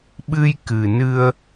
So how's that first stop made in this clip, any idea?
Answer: implosive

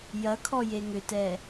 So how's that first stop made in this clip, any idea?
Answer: aspirated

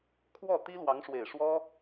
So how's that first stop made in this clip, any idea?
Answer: aspirated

